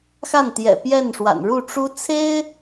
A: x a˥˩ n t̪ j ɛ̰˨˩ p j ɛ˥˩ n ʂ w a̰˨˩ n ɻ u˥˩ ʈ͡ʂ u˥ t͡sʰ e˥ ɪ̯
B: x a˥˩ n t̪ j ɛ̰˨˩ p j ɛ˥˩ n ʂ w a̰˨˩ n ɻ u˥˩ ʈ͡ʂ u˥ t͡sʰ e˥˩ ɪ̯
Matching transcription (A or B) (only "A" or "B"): A